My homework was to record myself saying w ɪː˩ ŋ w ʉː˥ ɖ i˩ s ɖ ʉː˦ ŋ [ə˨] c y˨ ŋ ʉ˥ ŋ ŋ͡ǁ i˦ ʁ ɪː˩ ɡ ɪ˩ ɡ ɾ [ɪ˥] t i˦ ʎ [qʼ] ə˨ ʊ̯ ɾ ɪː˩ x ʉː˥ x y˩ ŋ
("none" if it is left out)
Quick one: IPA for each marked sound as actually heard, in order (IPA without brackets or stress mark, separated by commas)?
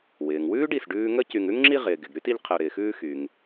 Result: ə˥, y˥, qʰ